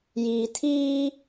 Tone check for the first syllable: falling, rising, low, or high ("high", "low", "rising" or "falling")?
low